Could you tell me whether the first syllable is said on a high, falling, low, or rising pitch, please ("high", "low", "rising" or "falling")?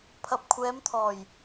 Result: low